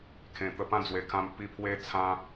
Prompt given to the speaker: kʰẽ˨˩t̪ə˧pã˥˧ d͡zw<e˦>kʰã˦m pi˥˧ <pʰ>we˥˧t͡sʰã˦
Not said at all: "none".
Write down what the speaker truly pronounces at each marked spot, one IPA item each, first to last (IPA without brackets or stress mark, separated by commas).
e˧, pʰ